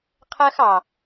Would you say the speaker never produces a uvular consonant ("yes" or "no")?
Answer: no